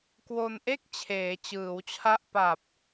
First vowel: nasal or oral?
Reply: oral